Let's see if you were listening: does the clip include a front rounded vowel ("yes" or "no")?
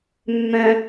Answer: yes